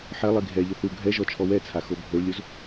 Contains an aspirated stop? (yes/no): yes